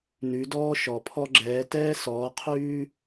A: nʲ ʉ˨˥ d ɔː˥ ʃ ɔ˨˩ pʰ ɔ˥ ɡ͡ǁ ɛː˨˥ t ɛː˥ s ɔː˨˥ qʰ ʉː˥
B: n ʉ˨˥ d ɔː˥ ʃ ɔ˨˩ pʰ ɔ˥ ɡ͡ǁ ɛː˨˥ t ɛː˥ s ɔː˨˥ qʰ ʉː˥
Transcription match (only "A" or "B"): B